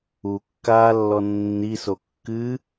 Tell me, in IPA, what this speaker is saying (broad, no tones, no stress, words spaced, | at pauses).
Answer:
ukːaːlːɔ nːiso kːɨ